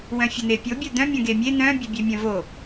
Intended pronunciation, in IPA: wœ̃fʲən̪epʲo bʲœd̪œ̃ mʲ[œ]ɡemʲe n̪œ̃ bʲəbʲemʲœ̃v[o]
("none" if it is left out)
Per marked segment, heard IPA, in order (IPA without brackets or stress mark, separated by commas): œ̃, o